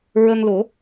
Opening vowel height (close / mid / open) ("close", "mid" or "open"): mid